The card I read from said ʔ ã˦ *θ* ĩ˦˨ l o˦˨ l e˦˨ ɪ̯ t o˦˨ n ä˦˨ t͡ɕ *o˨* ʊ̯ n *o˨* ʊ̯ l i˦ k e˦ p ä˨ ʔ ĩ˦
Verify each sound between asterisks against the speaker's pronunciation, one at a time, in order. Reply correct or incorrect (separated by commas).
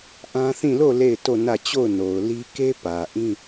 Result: correct, incorrect, correct